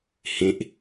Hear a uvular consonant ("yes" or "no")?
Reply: no